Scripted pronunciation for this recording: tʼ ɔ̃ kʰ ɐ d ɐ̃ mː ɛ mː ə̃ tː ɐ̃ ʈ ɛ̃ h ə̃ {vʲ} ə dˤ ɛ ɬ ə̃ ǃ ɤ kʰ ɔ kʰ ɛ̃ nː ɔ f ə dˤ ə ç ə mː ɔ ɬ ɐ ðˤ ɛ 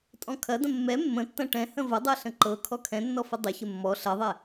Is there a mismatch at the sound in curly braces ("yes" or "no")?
yes